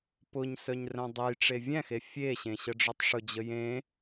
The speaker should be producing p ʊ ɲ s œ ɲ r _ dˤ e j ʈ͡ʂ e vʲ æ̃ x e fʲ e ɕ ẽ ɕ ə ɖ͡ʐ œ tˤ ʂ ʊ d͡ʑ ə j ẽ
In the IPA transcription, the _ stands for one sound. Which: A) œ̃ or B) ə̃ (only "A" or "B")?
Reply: A